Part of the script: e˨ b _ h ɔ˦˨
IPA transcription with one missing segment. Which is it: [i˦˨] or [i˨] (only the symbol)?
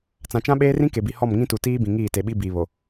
i˨